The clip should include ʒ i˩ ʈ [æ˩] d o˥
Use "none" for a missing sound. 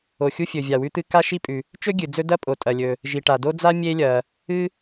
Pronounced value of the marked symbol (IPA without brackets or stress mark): a˩